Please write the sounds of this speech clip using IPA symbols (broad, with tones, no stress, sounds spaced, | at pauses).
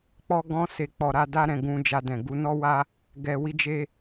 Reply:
k͡p ɔ˧ ɡ ɔ̃˧ s e˨ k͡p ɔ˨ ɾ a˧ d a˦ ɾ ɛ̃˧ ɡ ũ˧ d͡ʒ a˧ d ɛ̃˨ ɡ u˨˦ n ɔ˦ w a˦ | ɡ ɛ˨ w i˧ d͡ʒ e˧